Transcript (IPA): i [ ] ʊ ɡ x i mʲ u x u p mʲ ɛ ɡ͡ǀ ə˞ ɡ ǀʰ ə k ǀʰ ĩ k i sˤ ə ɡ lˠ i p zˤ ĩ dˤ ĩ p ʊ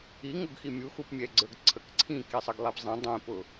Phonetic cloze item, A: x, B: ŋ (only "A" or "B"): B